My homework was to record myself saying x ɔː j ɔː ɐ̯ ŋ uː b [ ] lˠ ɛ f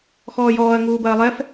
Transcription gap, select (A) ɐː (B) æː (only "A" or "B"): A